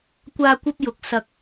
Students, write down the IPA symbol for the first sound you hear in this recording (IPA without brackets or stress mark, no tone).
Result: kʷ